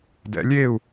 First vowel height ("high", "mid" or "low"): mid